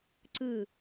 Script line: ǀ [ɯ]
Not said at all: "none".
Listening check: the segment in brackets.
ɯ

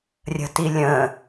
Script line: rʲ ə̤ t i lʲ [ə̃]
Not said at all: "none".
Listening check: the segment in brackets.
ə̃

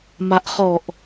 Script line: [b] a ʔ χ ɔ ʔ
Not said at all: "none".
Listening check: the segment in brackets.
m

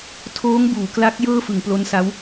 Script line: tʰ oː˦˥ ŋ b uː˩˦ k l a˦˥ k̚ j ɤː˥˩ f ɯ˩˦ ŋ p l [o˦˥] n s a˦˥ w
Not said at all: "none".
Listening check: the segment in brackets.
o˦˥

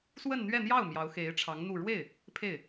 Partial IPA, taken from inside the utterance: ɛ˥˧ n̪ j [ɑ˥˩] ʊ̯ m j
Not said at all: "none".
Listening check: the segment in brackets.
ɑ˥˩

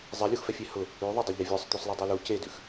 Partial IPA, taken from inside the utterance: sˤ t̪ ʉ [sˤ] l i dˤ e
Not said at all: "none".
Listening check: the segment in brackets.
sˤ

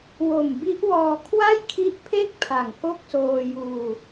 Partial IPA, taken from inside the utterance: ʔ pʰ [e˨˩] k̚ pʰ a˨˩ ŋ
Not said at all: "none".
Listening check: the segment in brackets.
e˥˩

